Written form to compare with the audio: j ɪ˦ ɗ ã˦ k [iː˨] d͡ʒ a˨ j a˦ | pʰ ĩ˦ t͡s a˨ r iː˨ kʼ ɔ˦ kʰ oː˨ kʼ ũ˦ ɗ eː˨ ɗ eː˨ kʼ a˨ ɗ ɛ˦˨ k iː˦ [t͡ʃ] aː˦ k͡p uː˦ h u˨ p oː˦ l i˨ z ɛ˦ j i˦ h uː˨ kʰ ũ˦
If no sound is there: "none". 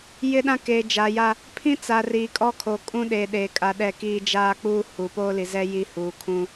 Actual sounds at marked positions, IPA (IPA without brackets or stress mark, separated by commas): eː˨, d͡ʒ